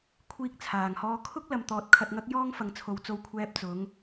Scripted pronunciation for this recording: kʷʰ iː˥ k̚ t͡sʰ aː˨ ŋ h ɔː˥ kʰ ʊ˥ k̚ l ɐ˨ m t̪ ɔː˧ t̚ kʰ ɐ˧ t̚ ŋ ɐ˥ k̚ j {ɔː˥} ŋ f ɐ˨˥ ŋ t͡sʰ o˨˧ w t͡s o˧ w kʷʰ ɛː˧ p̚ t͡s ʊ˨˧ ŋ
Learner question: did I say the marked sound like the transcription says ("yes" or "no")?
yes